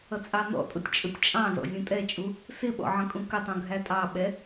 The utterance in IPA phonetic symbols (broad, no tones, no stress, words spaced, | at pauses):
ʌt͡sʼɑnɔ̰tʼʊtʲ t͡ʃʼʊtʲt͡ʃʼɑ̃zɔ̰ zʲũtʼɛt͡ʃʼu | sɪɓɔ̰ ʕə̃kʼũkətˤũ ɡʱætʼɑɓɛ